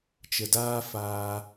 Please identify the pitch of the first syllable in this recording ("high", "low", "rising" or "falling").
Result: low